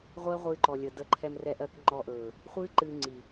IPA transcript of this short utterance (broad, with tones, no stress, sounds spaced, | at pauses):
ʁʷ ɜ˦ ʁʷ ɨː˧ ǃ ɔ˨ lʲ ə˨ d ə˧ ǃʰ ɛ˧ m r ɛ˧ ʔ ɜ˧ k ŋ͡ǃ ɔ˧ ʔ ɵː˨ | χʷ ɨː˦ ǃ ɨː˧ ŋ͡ǀ i˨